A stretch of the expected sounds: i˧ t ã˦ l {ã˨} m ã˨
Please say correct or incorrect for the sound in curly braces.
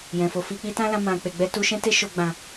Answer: incorrect